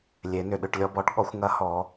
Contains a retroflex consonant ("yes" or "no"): yes